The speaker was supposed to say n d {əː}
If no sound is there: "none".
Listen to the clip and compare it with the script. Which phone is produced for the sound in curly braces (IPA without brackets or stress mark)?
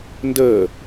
əː